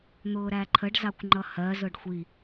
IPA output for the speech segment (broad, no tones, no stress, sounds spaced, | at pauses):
n̪ ʊː ɾ æ ǃʰ ə ɖ z ɑ kʷ ŋ͡ǃ ʌ h ɜ z ʊ ɖ xʷ i